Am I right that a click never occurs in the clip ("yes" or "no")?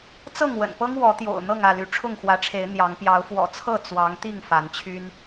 yes